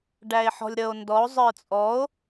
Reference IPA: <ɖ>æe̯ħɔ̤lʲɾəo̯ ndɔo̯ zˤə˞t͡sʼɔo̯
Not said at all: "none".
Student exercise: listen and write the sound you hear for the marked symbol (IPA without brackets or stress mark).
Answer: ɖ